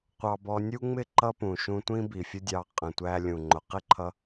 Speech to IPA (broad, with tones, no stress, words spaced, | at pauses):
qʷɑ˧bɔ˧ nʲu˦ŋ͡mɪ˦ ǃʌ˦pũ˨ ʃũ˧tʷĩ˦ bi˨fʲʊ˦dʲɑ˧ qʼə̃˨tʷæ˧lʲũ˨ŋ͡ǃʊ˨ qɪ˦ǃʰʌ˧